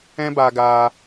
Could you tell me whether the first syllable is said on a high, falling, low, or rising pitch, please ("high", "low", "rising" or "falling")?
high